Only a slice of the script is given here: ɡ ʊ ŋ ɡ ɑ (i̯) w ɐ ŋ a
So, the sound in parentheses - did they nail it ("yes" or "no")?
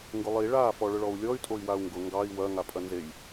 yes